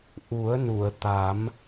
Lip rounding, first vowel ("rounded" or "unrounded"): rounded